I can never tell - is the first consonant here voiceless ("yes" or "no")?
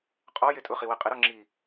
yes